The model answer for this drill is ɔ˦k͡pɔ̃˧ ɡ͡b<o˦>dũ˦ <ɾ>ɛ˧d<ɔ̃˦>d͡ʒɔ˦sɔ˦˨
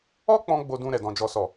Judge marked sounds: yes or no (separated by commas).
yes, yes, yes